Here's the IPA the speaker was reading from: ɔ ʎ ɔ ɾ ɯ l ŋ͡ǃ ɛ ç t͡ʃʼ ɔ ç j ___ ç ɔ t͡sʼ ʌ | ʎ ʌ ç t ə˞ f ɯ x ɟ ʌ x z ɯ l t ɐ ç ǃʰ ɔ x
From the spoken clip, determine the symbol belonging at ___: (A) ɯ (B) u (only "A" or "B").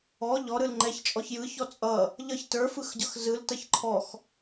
A